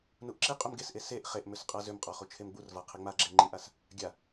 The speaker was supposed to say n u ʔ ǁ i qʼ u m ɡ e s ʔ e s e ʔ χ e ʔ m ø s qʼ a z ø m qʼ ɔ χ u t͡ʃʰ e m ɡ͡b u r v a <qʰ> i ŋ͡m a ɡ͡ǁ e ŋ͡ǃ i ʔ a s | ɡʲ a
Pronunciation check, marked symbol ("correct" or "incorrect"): correct